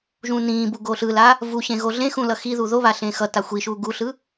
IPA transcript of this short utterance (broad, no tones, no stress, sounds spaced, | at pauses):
ʒ ũ n ĩː b u ɡ o ɬ ɯ l a | v u ɕ ẽ ɣ o ɮ ẽ x ũ l ʌ x i ð u ð o β a ɬ ẽː x ʌ t a xʷ i ʃ uː ɡ u ɬ ɯ